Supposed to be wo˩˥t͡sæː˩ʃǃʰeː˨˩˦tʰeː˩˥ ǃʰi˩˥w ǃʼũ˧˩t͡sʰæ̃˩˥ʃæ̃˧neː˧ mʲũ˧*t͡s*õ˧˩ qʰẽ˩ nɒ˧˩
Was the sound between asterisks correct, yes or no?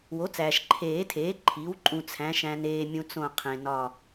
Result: yes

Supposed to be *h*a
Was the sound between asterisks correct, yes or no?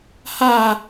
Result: yes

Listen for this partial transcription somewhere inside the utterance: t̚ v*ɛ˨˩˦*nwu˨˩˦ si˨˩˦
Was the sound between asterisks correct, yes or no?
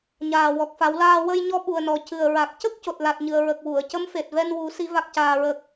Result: no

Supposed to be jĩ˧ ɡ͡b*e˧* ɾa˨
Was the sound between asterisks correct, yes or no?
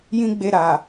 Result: yes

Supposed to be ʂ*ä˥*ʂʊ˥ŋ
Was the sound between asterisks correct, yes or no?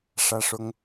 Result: yes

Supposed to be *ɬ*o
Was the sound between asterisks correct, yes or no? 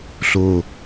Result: yes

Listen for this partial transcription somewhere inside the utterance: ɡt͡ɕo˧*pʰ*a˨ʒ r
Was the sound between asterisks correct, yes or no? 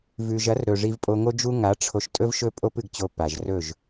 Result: no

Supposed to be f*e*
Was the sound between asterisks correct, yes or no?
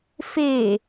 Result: yes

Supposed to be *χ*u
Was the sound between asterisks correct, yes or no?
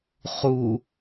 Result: yes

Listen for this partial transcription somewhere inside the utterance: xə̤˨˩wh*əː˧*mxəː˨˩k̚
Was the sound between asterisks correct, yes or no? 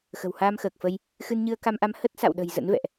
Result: no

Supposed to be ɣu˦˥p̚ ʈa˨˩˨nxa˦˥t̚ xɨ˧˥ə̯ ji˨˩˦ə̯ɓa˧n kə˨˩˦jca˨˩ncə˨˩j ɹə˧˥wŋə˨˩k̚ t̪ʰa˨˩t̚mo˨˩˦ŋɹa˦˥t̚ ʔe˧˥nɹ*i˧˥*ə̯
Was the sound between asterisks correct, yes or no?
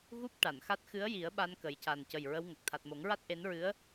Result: no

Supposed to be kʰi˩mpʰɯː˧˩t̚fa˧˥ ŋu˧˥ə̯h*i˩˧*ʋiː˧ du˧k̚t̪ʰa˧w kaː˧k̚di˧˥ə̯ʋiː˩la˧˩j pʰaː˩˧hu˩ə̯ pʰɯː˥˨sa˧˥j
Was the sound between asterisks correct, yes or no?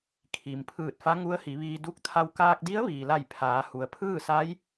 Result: yes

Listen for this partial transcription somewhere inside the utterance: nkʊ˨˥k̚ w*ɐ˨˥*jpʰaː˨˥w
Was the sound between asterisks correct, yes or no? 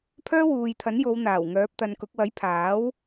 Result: yes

